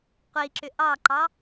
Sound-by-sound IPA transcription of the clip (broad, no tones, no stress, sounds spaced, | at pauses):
qʷ i ǁ ʏ ʔ ɑ ǃ ɑ